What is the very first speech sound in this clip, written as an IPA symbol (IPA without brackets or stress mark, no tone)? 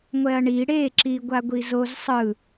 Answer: ŋʷ